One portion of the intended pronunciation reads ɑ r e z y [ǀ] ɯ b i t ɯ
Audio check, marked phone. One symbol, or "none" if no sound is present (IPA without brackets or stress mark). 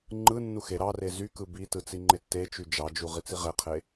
k